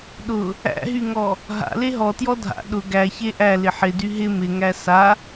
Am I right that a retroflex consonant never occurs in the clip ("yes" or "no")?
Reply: yes